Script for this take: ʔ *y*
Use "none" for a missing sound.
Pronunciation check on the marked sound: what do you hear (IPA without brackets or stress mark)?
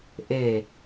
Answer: e